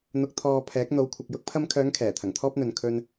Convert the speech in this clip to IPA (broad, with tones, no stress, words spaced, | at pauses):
n̪ʊ˨k̚t̪ʰɔː˨ pʰɛː˨˥k̚n̪o˨˧wkʷʰɐ˨k̚ jʊ˧k̚pʰɐ˧mkʰœː˨˧ŋ kʰɛː˨˩t̪ʰɐ˨˩ŋt̪ʰɔː˥p̚n̪ɵ˨n kʰɵ˧n